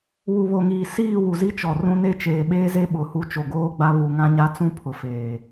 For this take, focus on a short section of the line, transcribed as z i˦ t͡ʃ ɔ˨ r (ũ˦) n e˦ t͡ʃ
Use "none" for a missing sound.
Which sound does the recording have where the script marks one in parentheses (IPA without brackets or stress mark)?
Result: ũ˦